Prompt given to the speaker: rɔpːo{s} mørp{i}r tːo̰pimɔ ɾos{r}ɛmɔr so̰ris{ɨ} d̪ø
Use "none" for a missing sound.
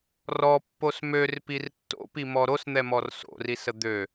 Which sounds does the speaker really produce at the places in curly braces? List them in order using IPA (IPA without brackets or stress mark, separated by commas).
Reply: s, i, n̪, ə